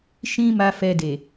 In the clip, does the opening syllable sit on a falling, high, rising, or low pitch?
high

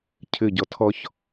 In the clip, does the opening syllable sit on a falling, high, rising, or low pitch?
falling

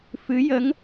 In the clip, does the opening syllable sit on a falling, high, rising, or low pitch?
rising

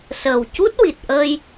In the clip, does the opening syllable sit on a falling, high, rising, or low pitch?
low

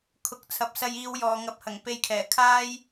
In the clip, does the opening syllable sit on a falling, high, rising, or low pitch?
low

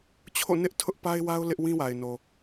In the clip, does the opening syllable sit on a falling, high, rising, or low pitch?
falling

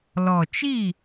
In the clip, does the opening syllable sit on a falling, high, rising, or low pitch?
low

